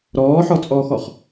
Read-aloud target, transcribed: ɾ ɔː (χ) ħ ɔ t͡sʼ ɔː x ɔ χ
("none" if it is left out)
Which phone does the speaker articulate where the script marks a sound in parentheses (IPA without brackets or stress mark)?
none